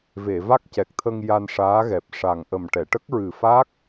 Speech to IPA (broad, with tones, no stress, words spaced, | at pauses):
ve˨˩˨va˦˥k̚cɛ˨˩k̚t̪ʰə˧ŋ ja˧nʂaː˧˥ɣɛ˨˩p̚ ʂa˨˩ŋ ʔə˨˩mʈɛ˨˩˨ ʈə˦˥k̚ɹɨ˨˩fa˦˥k̚